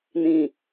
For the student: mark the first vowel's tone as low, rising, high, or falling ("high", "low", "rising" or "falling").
low